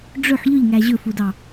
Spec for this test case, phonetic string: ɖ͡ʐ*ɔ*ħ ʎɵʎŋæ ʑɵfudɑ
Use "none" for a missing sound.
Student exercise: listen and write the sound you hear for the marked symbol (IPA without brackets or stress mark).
ɵ